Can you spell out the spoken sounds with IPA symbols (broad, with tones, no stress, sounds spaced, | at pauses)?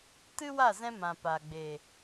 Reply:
t ɨ˦ w a˦˨ z ɛ̃˧ m ã˨ p a˨ ɡ͡b e˨